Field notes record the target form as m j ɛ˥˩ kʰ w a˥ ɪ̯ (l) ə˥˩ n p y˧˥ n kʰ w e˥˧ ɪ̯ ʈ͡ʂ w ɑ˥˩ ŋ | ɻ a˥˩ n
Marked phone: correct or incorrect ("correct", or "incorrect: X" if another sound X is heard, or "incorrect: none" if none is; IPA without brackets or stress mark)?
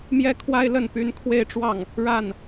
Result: correct